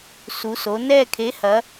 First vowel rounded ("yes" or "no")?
yes